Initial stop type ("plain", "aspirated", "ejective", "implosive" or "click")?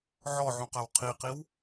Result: plain